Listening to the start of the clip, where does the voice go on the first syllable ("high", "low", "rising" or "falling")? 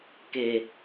low